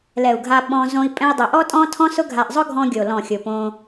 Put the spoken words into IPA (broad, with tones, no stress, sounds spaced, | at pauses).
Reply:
l ɛ˨ u̯ ɡʱ a˧ ɓ ɔ̃˧ z õ˧ i̯ pʼ ɛ̃˧ i̯ dˤ ʊ˨ ʔ ɔ˦ tʼ ɔ̃˦ tʰ ɔ̃˦ s ʊ˦ ɡʱ a˧ ʔ zˤ ʊ˦ ɡʱ ɔ̃˧ ɡʲ o˨ l ɔ̃˨ xʲ ʊ˨ p õ˧